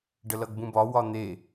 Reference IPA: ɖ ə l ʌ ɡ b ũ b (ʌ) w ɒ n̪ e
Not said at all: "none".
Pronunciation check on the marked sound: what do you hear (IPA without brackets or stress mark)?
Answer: ɒ